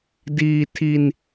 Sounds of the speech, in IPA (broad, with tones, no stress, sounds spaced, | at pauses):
d iː˧ tʰ i˧ n